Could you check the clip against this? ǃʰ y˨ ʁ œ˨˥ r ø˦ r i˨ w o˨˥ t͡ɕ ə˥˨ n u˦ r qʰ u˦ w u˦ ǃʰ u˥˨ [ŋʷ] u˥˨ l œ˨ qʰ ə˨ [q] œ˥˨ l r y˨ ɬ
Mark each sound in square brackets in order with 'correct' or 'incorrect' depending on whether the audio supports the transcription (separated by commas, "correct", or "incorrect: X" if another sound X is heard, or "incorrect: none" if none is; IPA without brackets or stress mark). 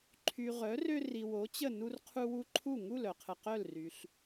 incorrect: ŋ, correct